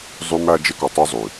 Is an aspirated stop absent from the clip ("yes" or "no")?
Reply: yes